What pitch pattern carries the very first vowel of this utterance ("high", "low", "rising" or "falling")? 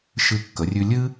high